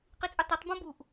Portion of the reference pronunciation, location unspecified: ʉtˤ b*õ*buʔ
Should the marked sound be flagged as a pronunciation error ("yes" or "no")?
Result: no